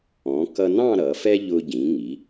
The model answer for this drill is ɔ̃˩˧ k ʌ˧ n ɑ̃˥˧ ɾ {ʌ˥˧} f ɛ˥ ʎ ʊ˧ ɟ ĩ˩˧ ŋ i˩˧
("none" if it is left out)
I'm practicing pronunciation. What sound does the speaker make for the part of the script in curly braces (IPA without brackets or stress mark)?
ʌ˩˧